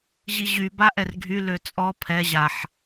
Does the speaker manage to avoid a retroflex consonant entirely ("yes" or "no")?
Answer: yes